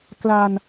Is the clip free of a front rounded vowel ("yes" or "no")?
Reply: yes